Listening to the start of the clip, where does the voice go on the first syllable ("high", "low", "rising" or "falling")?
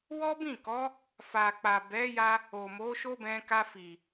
high